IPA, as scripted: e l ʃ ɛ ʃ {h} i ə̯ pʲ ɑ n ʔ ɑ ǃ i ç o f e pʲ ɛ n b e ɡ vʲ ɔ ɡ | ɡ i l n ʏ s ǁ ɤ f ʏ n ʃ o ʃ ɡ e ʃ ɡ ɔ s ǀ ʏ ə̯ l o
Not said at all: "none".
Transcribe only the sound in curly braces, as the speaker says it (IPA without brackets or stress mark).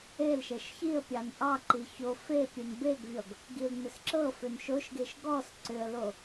ç